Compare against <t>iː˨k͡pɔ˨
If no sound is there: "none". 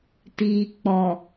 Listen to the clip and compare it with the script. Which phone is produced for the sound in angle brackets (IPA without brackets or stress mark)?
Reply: t